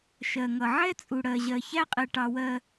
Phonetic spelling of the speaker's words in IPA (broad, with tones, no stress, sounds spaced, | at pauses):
ʃ ɜ˨ ŋ ʌ˨ ʕ ɛ˦ t͡sʼ u˨ ɽ ɜ˨ ʑ ɜ˨ ç æ˦ qʼ ɛ˨ ʈ ɑ˨ w ɜ˨